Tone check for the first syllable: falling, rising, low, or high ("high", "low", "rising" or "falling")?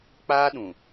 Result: high